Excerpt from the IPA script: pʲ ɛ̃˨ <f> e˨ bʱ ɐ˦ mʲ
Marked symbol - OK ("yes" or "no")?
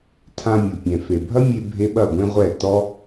yes